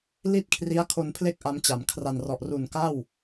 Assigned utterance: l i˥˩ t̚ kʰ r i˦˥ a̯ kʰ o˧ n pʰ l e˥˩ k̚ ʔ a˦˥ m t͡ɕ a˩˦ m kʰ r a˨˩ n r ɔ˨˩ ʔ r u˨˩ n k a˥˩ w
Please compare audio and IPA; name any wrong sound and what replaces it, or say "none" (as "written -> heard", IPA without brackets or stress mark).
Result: none